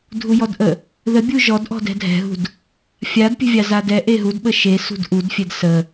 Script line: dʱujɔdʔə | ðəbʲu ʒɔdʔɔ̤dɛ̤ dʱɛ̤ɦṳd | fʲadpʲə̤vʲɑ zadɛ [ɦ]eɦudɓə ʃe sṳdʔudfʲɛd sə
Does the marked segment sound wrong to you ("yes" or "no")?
yes